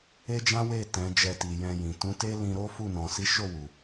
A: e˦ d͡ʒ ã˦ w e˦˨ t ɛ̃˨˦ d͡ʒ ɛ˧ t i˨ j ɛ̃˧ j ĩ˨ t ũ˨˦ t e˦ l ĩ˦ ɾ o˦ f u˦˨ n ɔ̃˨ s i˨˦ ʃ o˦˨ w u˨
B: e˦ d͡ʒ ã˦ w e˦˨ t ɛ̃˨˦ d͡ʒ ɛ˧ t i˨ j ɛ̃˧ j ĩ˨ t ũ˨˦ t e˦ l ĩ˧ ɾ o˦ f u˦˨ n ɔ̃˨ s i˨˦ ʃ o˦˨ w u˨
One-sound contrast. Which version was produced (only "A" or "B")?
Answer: B